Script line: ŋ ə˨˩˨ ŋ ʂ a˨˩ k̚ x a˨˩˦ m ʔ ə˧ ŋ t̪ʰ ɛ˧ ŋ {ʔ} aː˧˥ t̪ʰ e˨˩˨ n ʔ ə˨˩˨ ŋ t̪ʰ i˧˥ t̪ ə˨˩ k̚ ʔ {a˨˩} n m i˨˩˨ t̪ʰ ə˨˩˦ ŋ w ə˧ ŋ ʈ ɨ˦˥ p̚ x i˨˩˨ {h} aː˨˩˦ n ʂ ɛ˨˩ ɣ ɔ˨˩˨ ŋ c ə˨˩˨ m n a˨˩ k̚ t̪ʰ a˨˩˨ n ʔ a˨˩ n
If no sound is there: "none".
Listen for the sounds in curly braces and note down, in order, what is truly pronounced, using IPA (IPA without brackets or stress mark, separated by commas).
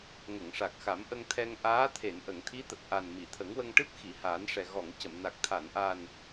ʔ, a˨˩, h